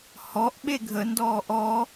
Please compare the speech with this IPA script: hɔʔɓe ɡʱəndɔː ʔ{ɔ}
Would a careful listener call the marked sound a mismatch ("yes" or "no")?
no